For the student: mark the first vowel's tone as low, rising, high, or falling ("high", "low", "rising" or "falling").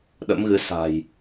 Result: rising